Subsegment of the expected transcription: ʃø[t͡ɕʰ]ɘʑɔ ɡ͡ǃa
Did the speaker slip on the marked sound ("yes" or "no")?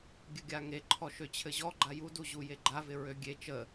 no